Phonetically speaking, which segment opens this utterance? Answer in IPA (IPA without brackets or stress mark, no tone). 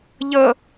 ʎ